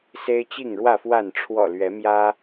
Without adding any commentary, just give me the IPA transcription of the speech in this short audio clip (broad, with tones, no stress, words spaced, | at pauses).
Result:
se˦ɪ̯t͡ɕi˥˨ŋɻwä˥˨fwa˥˨n ʈ͡ʂʰwɔ̰˨˩ lɥɛ˨˦mjä˦